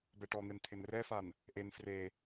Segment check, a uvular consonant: absent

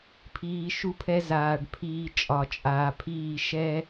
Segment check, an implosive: absent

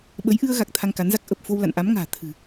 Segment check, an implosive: present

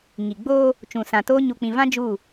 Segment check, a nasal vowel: present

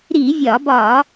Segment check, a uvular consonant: absent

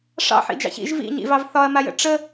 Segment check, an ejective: absent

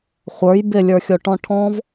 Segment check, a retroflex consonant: present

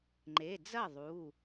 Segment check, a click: present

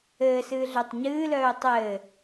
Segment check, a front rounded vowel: present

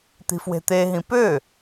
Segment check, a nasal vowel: present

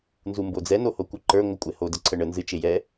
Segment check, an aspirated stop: present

